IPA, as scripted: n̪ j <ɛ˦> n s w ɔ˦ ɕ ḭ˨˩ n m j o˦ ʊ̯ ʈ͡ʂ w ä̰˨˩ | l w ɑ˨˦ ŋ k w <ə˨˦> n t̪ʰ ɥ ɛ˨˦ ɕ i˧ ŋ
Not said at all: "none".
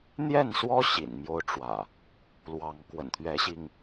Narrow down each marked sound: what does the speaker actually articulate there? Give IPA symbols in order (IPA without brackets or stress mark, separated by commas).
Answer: ɛ˥˨, ə̰˨˩